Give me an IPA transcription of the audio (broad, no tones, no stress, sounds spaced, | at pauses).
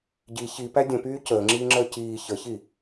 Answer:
ɟ i ç i p æ dʲ ə̃ p yː c əː ŋ͡ǁ iː ŋ͡ǁ əː c iː ç ə ç i